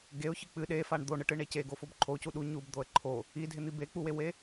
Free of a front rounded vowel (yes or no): yes